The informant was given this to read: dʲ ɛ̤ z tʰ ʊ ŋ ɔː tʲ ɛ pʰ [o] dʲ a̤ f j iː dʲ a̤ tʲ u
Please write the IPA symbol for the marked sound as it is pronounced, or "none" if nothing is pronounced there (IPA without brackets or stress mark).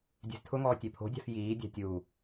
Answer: o̤